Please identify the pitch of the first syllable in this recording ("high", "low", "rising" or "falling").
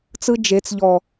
high